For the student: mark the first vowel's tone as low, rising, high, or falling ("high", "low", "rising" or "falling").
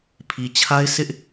low